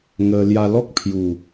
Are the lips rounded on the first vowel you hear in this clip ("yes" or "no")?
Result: no